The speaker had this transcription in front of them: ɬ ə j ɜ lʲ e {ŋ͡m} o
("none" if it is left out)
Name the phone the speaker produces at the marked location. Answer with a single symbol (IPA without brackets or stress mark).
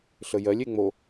ŋ͡m